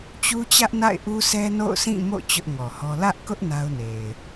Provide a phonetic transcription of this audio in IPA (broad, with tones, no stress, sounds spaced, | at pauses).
t͡ɕ u˦ t͡ɕ ä˦ ʔ n a̰˦˨ ɪ̯ ʔ u˦ s ɛ˦ n o̰˦˨ ʊ̯ s ĩ˦˨ m o̰˦˨ t͡ɕ ʊ˦ ʔ ŋ ɔ˨ h ɔ˦ l ä˦ ʔ k ʊ˦ ʔ n a˦ ʊ̯ n e˨ ɪ̯